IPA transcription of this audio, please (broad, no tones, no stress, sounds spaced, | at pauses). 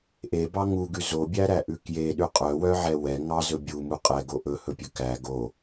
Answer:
ʔ e b ɑ ŋ u ɡ ʉ z o bʲ æ ɾ æ ʔ ʉ k j e ɗ ʉ qʼ œ w œ ʕ ɛ w ɛ ŋ ɑ z ɵ bʲ u m u qʼ ɛ ɡ o ʔ ɵ h ɵ pʲ ɵ k æ ɡ o